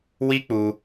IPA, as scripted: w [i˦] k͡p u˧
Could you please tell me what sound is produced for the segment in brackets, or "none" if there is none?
i˦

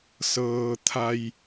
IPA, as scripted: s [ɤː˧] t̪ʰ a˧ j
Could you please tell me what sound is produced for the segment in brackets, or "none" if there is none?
ɤː˧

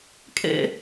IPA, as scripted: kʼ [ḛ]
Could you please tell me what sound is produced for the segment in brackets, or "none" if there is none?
ḛ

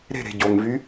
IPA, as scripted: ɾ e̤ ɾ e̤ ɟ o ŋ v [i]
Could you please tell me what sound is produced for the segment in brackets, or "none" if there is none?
y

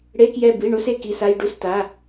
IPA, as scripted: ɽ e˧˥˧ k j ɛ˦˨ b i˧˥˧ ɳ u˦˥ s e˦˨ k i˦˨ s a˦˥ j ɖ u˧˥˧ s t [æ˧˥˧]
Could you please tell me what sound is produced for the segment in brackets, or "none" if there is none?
a˧˥˧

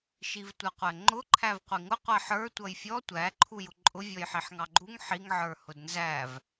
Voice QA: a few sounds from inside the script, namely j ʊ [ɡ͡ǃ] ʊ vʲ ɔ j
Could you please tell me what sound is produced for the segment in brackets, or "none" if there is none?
ǃʼ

